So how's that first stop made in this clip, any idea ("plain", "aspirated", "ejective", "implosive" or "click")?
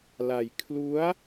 aspirated